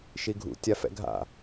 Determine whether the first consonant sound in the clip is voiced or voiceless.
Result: voiceless